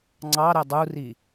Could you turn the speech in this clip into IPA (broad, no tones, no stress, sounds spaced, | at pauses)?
ŋ͡ǀ ɑ ɾ ɛ dˤ u r i